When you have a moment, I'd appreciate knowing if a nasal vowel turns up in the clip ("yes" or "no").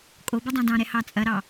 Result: yes